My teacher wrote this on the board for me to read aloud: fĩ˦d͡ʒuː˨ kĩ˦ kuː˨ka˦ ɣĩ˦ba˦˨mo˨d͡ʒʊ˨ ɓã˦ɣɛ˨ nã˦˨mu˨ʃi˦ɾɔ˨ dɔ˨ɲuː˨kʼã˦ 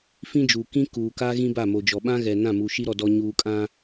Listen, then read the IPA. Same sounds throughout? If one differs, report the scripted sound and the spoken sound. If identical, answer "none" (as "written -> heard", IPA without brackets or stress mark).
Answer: ʊ˨ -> ɔ˨